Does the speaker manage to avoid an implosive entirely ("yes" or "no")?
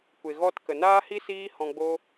yes